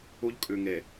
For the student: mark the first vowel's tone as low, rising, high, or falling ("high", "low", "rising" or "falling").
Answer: high